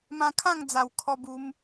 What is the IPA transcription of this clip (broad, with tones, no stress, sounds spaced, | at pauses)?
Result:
m ã˧ kʰ ã˥˧ ŋ d͡z a˨˩ w kʰ ɔ˧ b u˧ m